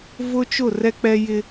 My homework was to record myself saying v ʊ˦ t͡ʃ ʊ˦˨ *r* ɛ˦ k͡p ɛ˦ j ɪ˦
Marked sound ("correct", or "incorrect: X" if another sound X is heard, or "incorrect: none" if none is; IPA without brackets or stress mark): correct